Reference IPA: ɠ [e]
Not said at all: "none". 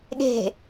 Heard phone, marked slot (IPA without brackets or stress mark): e̤